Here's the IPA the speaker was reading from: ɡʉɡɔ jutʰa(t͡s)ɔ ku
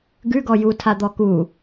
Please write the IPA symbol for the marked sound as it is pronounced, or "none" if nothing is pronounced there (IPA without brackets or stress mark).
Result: d̪